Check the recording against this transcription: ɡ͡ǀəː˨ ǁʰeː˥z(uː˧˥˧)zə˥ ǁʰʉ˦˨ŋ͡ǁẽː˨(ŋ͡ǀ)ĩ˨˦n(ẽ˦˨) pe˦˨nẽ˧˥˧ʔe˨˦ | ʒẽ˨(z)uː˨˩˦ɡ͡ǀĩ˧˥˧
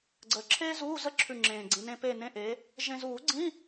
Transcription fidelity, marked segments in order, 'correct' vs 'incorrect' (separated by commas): correct, incorrect, incorrect, correct